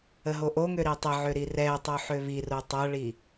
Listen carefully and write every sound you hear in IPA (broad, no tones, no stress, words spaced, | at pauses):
əɦoʔoŋø ɾitˤəʕø ɾirɛtˤo ħøβiro tˤʌɭi